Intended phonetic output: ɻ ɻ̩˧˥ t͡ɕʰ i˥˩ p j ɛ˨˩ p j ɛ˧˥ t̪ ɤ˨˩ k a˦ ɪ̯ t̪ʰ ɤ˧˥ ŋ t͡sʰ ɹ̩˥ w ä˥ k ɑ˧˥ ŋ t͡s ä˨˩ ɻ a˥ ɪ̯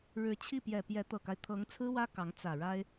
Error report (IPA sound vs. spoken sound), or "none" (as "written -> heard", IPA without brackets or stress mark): none